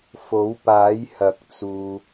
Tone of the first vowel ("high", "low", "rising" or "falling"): rising